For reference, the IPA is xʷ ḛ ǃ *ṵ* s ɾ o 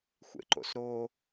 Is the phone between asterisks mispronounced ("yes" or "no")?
yes